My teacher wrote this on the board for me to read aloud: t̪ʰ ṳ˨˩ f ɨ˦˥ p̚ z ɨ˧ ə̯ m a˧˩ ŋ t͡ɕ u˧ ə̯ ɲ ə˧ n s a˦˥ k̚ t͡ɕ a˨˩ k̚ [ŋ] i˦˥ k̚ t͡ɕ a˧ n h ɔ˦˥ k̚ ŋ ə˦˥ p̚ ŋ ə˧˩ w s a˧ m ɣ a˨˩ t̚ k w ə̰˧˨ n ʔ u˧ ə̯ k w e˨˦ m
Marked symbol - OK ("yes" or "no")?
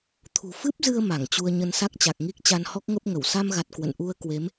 yes